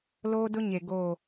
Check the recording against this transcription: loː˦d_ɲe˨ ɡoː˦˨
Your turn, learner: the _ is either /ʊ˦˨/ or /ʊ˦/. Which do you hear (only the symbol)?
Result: ʊ˦